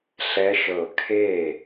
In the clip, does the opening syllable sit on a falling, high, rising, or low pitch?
rising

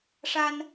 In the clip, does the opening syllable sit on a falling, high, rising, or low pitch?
high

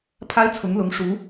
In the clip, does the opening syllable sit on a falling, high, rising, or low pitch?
high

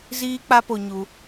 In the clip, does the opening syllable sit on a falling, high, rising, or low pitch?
high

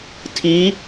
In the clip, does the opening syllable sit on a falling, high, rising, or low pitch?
rising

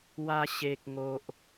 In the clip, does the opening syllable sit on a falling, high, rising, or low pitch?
high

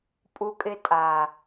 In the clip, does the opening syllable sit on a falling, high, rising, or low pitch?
high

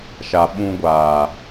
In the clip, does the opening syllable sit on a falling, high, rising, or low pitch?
low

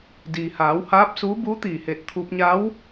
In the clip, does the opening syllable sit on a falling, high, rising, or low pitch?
low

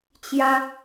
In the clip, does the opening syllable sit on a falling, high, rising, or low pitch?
high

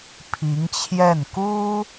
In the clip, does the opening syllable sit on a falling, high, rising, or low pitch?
rising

